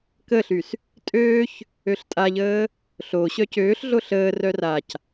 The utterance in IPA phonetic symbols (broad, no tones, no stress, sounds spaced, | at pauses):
k ə ɬ y s | tʼ øː ç | ø ɬ tʼ a ʎ əː | ɬ o ɕ œ c øː ɬ ɮ o ɬ əː r œ r a c